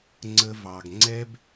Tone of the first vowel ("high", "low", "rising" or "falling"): high